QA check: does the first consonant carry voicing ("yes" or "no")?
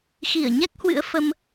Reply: no